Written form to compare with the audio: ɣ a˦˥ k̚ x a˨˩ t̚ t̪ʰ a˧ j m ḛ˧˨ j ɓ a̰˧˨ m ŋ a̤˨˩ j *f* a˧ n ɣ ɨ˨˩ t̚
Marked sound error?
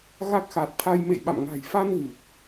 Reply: no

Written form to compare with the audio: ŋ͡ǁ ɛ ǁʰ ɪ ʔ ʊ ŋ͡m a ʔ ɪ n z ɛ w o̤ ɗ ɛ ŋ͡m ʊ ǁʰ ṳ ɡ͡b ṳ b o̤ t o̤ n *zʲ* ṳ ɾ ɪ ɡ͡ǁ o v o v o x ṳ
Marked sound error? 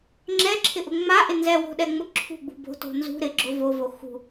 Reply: yes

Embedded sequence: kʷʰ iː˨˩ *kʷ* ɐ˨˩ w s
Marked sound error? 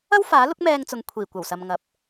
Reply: no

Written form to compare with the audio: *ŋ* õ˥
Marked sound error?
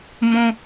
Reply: yes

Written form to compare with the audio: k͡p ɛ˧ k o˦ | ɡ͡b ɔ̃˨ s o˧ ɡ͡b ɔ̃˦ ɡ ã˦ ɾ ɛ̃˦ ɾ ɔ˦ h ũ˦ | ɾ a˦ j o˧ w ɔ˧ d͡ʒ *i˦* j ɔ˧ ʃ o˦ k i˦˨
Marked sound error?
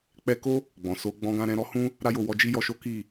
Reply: no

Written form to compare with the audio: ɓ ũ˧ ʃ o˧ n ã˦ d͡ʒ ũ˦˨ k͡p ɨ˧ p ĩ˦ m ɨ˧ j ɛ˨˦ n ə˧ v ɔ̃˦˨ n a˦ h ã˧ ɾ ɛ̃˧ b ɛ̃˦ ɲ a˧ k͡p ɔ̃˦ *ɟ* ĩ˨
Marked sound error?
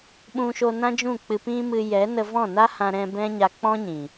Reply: yes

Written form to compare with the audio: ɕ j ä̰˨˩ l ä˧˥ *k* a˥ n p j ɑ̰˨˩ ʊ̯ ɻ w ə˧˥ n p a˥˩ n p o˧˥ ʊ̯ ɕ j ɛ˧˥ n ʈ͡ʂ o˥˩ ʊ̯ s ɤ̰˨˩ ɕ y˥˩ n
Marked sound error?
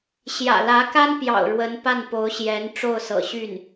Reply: no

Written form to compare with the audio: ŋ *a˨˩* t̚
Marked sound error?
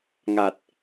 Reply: no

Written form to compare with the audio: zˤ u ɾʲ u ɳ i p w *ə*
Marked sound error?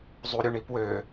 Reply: yes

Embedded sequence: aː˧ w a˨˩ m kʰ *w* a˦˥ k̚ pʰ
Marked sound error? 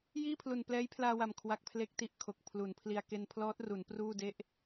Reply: no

